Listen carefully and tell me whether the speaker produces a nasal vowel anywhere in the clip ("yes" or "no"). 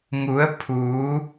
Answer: no